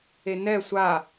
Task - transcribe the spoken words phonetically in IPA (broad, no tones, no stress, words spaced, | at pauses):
enɛ sʷa